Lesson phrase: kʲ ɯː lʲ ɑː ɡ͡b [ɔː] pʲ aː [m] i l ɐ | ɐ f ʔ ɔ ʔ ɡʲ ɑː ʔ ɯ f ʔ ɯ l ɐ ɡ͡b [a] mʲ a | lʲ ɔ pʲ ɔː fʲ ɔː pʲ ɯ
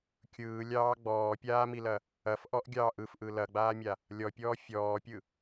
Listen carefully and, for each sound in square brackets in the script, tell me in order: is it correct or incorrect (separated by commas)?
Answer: correct, correct, incorrect